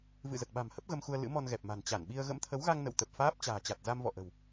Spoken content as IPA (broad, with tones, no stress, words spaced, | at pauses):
vɨ̰˧˨zə˨˩t̚ɓa̤˨˩mhə˦˥p̚ ɣə˧mxu˧ə̯ lɨ̰˧˥mɔ˧nɣɛ˨˩p̚ma̤˨˩n t͡ɕa˧˩nɓi˧ə̯ ɣə̰˧˥mt̪ʰə˨˦wɣa˧ŋ nə̰˧˨wt̪ə˨˩p̚faː˦˥p̚ t͡ɕa̤ː˨˩t͡ɕa˨˩t̚ za˧mvɔ̰˧˨ʔə̤˨˩w